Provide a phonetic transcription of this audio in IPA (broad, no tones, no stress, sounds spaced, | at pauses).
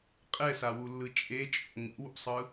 qʼ ɛ s a w u lː ɯ t͡ʃʼ e t͡ʃʼ o̰ ŋ ḭ w ṵ sˤ ɯ